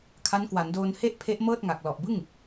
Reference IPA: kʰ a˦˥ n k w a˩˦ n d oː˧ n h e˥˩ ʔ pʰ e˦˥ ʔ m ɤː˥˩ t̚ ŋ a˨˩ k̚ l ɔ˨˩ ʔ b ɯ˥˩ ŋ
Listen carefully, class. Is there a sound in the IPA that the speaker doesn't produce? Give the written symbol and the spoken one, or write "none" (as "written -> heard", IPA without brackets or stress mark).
none